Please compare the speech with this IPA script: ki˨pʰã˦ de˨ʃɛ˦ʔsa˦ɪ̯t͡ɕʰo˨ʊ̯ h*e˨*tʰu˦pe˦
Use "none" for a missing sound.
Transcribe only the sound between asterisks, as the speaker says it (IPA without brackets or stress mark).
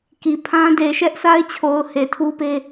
e˨